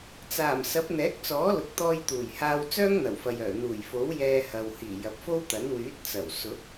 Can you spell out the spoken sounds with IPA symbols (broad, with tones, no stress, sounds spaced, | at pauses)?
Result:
t͡s aː˨˩ m s ɐ˨˥ p̚ n̪ ɛː˨˥ k̚ t͡s ɔː˨˥ l ʊ˨ k̚ t̪ ɔː˧ j t̪ uː˨˩ j h aː˧ w t͡s œː˥ ŋ n̪ ɐ˨˩ w f ɐ˨ j œː˨˩ n̪ uː˨˩ j f o˨˥ w j ɛː˧ h ɐ˨ w h iː˨˩ j ɐ˨ p̚ f o˥ w t̪ ɐ˨˥ n w yː˨˥ t̚ t͡s ɐ˨˩ w s ʊ˨˥ k̚